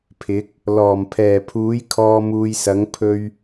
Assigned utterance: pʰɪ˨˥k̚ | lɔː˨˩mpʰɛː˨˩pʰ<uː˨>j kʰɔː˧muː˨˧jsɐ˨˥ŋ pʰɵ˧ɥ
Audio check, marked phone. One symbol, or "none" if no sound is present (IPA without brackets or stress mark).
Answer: uː˨˥